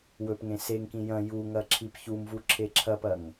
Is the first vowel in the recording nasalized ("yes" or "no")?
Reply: no